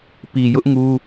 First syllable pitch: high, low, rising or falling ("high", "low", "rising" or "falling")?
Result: low